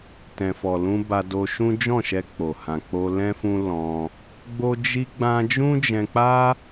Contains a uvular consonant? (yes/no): no